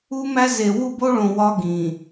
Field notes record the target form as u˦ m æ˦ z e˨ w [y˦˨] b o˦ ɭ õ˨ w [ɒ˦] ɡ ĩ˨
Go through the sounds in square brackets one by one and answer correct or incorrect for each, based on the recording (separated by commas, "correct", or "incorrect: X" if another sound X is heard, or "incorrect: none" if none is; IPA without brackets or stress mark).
incorrect: u˦˨, correct